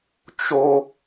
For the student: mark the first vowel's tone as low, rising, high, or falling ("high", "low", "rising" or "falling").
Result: high